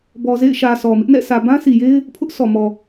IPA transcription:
b ɔ˨ z ḛ˦˨ ɪ̯ ʃ ä˨ s ɔ˨ m ɪ˦ ʔ n ɛ̰˦˨ sʰ ä˨ b ã˦ s i˨ j e˦ ɪ̯ | pʰ ʊ˦ ʔ sʰ ɔ˨ m ɔ˨

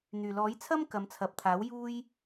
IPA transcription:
n̪ yː˨˩ l ɔː˨˥ j t͡sʰ ɐ˥ m k ɐ˨˧ m t͡sʰ ɐ˨ p̚ t̪ʰ aː˨˥ w j uː˥ j

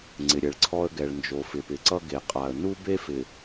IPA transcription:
ŋ͡ǀ ɪ˨ ɾʲ ɛ˨ ɭ ǀʰ ɔ˦ ə̯ ɡ ɛ˨ ɭ n d͡ʒ o˨ f ɪ˨ p ɪ˨ ǀ ʌ˦ ɡ e˨ qʼ a˨ ə̯ n u˦ b e˦ f ɪ˨

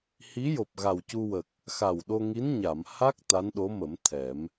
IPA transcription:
h i˧˥ j o˨˩ p̚ ɣ a˨˩ w c u˧ w ə˨˩ k̚ | x a˨˩ w ɗ o˧ ŋ i˧˥ n ɲ a˨˩˨ m h a˦˥ k̚ t̪ a˧˥ n ɗ o˧˥ m ə˨˩˦ m t̪ʰ ɛ˨˩˦ m

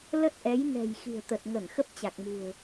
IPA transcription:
l ə˦˥ t̚ ʔ ɛ˨˦ j n ɛ̤˨˩ j x i̤˨˩ ə̯ t̪ ə˨˩ t̚ ŋ ə˧˩ n x ə˦˥ p̚ t͡ɕ a˨˩ k̚ m ṳ˨˩ ə̯

